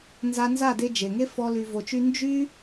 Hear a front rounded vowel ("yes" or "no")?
yes